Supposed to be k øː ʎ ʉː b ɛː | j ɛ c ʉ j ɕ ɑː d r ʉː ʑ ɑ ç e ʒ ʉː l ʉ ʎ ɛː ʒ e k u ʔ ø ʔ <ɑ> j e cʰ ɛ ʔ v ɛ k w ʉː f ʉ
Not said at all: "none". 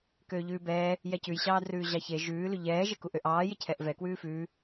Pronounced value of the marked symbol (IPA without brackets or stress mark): ɑː